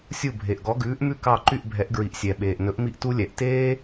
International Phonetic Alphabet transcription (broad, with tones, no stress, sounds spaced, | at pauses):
sʲ u˥˩ bʱ e˩ ʔ ɡ ɔ˩˥ ɡ ʉː˩˥ ʔ m ʉ˥˩ k ɑ˥˩ ǃ y˥˩ ʔ bʱ ɛ˩˥ ʔ ɡ ɹ i˩ ʔ sʲ ɛ˩ ɓ eː˩ ʔ n ɵ˩˥ ʔ m i˥ ʔ t u˥ lʲ ɛ˩ ʔ t eː˥